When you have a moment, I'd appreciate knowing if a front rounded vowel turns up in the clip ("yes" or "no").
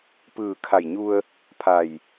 no